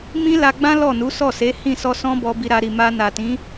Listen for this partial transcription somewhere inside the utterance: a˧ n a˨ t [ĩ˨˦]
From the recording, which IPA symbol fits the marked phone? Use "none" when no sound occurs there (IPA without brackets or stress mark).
ĩ˨˦